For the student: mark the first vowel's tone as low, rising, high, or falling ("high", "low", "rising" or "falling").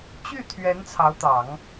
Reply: falling